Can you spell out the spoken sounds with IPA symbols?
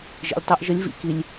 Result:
ʒ ḭ˩ lʲ tˤ o˧ ʔ ʒ ə˧˥ lʲ v ḭ˧ k i˩˧ lʲ

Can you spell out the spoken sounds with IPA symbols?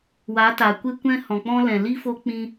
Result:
w a˨˦ t a˨ kʷ e˦ kʷ ɛ̃˦ h ɔ̃˨ k͡p ɔ̃˦ l ɛ̃˨ l i˦ f o˦ k͡p ĩ˦

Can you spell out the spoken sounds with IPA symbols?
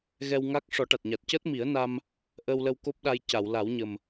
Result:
ɣ ɛ˧ w ŋ a˦˥ k̚ ʂ ɔ˨˩˦ ʈ a˨˩ t̚ ɲ a˨˩ t̚ c əː˦˥ t̚ m i˨˩˦ ə̯ n a˧ m | ʔ əː˧ w l ə˧ w k o˦˥ p̚ ɗ a˧ j c a˨˩˨ w l a˨˩˦ w ɲ ə˨˩ m

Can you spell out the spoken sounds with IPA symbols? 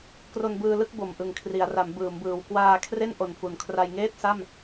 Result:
k r o˧ n b ɯː˧ l ɯ˥˩ k̚ b o˨˩ m ʔ ɯ˨˩ ŋ kʰ r i˩˦ a̯ r a˩˦ m b ɯː˩˦ m b ɯː˨˩ w k w aː˧ kʰ r e˥˩ n ʔ o˨˩ n f u˨˩ n kʰ r a˧ j ŋ eː˥˩ t̚ s a˥˩ m

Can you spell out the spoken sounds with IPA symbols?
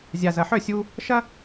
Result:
zʲ a˨ z ɐ˨ ħ œ˦˨ sʲ u˧ | ʃ ɐ˦

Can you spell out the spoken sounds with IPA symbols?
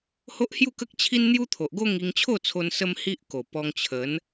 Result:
h o˦ ʔ h j u˥˧ k ə˦ k̚ t͡ɕʰ i˦ n n̪ j u˦ t̪ʰ o˨ ʔ ɡ o˦ ŋ i˧ ŋ t͡ɕʰ o˥˧ t͡sʰ o˧ n s ə˦ m h i˦ ʔ k o˨˩ p ɔ˧ ŋ t͡ɕʰ ə˨˦ n

